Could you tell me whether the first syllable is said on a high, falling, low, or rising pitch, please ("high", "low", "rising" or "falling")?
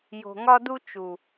low